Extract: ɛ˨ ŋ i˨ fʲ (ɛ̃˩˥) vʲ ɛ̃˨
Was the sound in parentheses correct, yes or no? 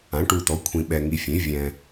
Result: no